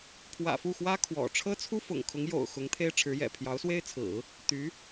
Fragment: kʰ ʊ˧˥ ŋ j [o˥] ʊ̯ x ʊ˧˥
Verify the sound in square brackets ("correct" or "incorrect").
incorrect